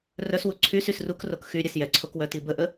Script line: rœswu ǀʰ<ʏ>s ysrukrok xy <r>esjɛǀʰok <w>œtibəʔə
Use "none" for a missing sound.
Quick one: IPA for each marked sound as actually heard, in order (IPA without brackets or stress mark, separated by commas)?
y, ɾʲ, w